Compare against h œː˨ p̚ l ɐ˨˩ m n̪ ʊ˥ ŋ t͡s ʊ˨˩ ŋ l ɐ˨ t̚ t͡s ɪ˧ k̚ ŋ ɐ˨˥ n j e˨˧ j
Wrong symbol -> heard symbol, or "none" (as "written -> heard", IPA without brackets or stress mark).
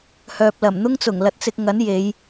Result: none